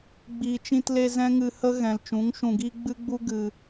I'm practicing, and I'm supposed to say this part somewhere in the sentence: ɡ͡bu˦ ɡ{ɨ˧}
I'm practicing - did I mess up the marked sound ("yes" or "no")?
no